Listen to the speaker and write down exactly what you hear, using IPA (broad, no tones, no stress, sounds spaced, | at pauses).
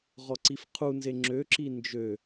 ʁ ɔ ǀ i f qʰ u n z e ŋ͡ǁ ø ǁ i n d͡ʒ ø